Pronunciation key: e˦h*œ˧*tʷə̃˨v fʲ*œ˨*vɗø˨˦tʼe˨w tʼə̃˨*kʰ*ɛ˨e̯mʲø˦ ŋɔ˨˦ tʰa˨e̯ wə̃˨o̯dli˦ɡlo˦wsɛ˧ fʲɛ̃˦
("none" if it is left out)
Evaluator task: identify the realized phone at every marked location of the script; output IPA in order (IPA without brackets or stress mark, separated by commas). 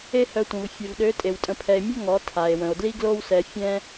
œ˧, œ˨, pʰ